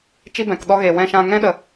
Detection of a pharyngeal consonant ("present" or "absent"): absent